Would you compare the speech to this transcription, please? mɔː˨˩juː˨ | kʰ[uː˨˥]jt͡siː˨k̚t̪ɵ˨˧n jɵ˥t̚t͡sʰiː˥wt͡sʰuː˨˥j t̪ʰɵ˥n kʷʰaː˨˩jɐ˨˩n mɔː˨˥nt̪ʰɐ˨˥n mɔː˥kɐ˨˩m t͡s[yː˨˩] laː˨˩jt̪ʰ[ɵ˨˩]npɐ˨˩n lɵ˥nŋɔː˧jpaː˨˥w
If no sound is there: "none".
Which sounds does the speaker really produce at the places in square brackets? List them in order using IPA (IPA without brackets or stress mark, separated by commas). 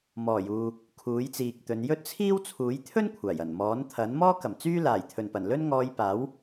uː˨˥, yː˥, ɵ˨˩